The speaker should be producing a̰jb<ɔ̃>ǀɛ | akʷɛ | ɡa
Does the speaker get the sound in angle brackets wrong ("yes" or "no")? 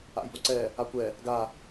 yes